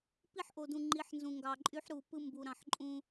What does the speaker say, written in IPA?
p i˦ ħ ʔ o˨ d ũ˨ ŋ͡ǃ i˨˦ ħ n z ũ˨ ŋ ɡ ɑ˨ ǃʼ y˦ ħ ɾ u˨ p ɯ˦ m b u˨ ɾ ɑ̃˨ ħ ǃʼ ũ˦

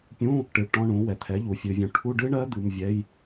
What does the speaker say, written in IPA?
pʲ ũ˧˥˧ | ʈ ɨ˨ ɭ ʈ ɔ̃˧˥˧ ɳ ũ˩˥ w ɛ˨ t̪ʰ ɛ˩˥ ʎ u˨ fʲ ɨ˨ vʲ ũ˨ ʈʰ u˧˥˧ ɖ ɨ˦˥ ɳ ɜ˦˥ d̪ ɨ˧˥˧ m vʲ ɛ˧˥˧ j

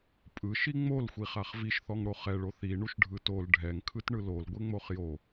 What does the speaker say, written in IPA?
pʼ ɯ ʃ i ŋ͡m o l xʷ i χ a χ v i ʃ θ ɔ ŋ ɽ o χ ɛ ɭ o θ i ɳ u ʃ ɖʱ ɯ t o l ɖʱ ɛ ŋ kʰ ɯ t ɳ ɯ l o l ɡʷ e ŋ͡m o χ j o

